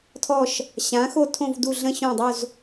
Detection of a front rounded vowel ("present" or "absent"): absent